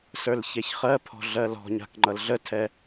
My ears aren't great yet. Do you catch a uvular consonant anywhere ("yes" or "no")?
yes